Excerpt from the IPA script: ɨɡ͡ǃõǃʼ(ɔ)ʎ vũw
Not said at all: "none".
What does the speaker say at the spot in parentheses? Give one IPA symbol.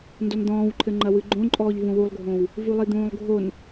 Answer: ɔː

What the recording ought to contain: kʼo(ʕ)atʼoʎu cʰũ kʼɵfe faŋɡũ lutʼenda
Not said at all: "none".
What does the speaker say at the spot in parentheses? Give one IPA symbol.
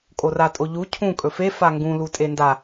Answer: r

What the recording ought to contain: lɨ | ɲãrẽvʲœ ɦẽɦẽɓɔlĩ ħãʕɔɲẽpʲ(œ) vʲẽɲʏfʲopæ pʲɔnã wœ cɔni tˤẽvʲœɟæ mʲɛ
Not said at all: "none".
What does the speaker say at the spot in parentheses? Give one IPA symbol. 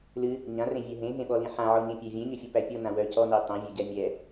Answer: æ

